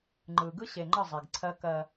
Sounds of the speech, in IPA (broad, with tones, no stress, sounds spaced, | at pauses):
ŋ͡ǃ ɯ˨ ɡ ɯ˦ ɕ e˨ ŋ͡ǃ ə˦˨ zˤ e˨ ɡ ǀʰ ɜ˦ k ɜ˦